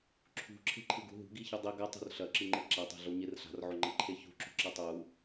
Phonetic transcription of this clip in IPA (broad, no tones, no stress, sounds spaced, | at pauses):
ǁʰ ṳ ǁʰ e̤ ǃʰ ɨ ɡ ṳ ɦ ṳ ɡ i ç ɨ dˤ i ɡ ɐ tˤ o̤ r ɬ ɐ ǁ ɨ ŋ͡ǃ e ǁ a tˤ a̤ ɮ o ɲ e r ɬ a̤ r ʕ o ŋ͡ǃ ɐ ǃʰ e ç ṳ ǁ ṳ ǁ ɐ tˤ u